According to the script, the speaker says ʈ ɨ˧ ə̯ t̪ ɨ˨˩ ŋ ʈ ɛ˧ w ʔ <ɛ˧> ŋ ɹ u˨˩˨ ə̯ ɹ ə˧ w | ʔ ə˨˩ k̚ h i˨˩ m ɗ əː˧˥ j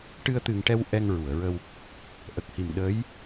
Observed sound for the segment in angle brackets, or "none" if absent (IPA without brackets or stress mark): ɛ˧